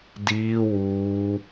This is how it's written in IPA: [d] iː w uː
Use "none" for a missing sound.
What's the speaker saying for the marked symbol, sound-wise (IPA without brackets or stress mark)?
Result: d